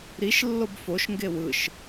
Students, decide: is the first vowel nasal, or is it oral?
oral